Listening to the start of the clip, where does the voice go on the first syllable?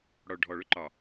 low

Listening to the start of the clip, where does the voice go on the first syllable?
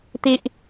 high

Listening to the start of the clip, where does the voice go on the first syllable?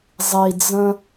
low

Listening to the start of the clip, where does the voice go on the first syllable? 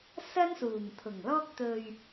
high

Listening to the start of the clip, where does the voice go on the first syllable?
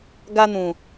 high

